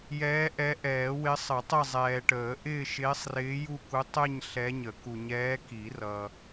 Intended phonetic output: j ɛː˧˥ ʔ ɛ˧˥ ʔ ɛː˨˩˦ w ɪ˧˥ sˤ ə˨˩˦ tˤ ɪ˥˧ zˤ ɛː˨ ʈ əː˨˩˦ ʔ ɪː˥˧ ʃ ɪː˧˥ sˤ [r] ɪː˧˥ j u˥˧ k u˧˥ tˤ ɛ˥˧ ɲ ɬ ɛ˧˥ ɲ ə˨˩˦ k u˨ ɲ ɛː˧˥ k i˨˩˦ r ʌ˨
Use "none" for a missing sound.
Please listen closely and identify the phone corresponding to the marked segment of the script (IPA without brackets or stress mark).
r